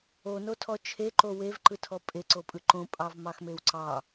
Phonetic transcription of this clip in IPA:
onotʰɔ t͡ʃʰeǃo wevǃɯtʰɔ pʼeǀopʼɯ ǃõpʼɑvmɑxmew ǀɑ

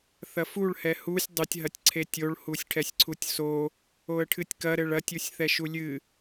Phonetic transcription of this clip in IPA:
θɐfuɭhɛ husʲ dˤɘtʲɦɐtʲ ǀʰetʲoɭ husʲʈʰɛsʲǀʰutʲso | oə̯ʈʰɨtʲkɐ ɾɘɭɐtʲusʲ θɛʃulʲɨ

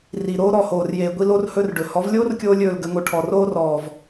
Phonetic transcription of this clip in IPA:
ri˨ɾoː˦ ɾɔ˦˨hoː˨rjeː˨ ɡʷi˦lo˦rhɵ˦rɖɵ˨ hɔ˨˦vlʲoː˦rkʲoː˧ lʲɵː˦˨lɡə˨˦ŋo˧ʈʰɔ˨ roː˦rɔː˨v

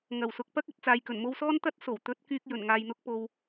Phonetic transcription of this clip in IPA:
ŋɐ˨˩wsʊ˨k̚ pɐ˥k̚ɵ˧t̚ t͡saː˨jkɵ˨˩nmo˧wsɔː˥n t̪ɐ˥t̚so˨˩w t̪ɵ˨˥t̚kyː˧k̚ jɵ˨˩nŋaː˨jn̪ʊ˧k̚ po˧w

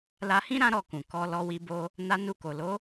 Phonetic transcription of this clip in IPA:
la˧hĩ˦ ɾã˦ɾɔ˦˨kũ˨ kɔ˧ lɔ˧wi˧ bo˧ | na˧nu˧ko˨ lo˨˦

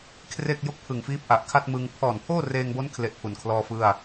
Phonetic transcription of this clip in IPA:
kʰre˥˩k̚jo˥˩k̚ pʰɯ˨˩ŋfiː˦˥p̚ʔa˨˩ʔ kʰa˥˩t̚mɯ˧ŋ pʰɔː˨˩npʰoː˥˩reː˧ŋbo˦˥n kʰle˥˩ʔpʰu˨˩nkʰlɔː˥˩fɯ˥˩a̯

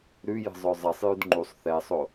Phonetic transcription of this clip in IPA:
ɾʉjə̤zˤœ zˤɛsˤjʉd ŋ͡ǃusˤ θɛsˤo

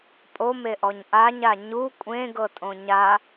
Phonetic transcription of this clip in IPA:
pʼomeʔɔɲ ʔaɲa ɲu kʷʼẽɡɤtʼõ ɲa

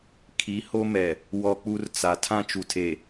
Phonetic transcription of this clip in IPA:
kʰi˨˦ho˦mɛ˨ | wɔ˦k͡pu˦rt͡sa˨ tʰã˦t͡ʃu˨tʰe˨

